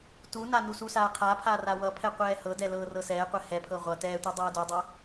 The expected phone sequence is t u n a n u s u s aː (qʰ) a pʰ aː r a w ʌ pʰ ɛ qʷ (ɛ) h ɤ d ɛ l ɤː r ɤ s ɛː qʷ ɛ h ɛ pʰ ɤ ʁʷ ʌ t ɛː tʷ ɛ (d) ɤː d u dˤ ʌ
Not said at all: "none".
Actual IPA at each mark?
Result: qʰ, ɛː, dˤ

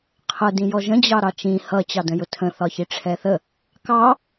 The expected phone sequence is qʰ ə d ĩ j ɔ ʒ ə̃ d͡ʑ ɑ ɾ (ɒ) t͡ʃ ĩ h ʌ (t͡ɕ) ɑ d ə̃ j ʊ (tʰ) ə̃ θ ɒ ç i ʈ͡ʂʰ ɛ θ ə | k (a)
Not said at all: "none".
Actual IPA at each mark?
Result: ɑ, t͡ɕ, tʰ, ɑ

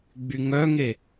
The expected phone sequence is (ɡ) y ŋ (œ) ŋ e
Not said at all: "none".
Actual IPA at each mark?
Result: ɡ͡b, œ

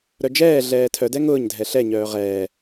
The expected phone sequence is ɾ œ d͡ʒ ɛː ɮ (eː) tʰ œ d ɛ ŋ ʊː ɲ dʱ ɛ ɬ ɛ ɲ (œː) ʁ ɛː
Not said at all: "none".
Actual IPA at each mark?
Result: ɛː, œː

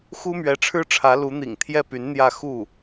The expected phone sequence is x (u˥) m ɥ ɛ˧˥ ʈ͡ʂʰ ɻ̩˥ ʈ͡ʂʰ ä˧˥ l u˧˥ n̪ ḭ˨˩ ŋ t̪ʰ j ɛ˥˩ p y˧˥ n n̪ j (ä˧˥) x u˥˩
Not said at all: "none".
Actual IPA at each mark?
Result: u˥, ä˥˧

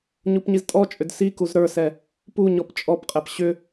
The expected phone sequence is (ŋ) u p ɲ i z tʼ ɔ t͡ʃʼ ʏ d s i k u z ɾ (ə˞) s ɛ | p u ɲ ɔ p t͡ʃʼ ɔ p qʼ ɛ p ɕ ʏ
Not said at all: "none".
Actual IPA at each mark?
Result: ɲ, ə˞

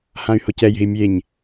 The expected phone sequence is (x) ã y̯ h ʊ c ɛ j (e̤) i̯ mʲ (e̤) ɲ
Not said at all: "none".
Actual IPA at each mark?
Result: h, e̤, e

